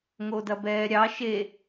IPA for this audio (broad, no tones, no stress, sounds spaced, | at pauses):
ŋ o d ɐ b ɛː ɾʲ ɑ ʃ e